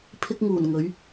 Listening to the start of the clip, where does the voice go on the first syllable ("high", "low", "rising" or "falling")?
high